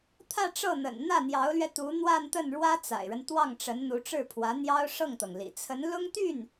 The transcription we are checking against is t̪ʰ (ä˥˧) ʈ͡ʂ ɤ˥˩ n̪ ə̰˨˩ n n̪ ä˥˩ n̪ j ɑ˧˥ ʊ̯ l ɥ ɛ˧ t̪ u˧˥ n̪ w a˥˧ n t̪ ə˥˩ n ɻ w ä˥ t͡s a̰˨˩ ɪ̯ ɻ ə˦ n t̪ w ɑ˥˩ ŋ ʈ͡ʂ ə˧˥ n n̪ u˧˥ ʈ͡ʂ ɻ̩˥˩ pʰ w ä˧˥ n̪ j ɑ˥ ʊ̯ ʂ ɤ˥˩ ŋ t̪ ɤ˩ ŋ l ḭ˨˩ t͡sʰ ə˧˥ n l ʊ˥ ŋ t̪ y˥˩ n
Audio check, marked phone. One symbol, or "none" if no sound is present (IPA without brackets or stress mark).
ä˥˧